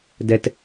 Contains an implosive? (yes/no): no